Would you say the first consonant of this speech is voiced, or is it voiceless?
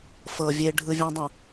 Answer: voiceless